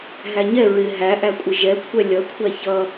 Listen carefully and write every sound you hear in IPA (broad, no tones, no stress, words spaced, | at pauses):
ɦæɲɛ ɹɪ ɦæʔækʷʼɪ ʒɛkʷʰɛ lʲʌkʷʰæ çʌ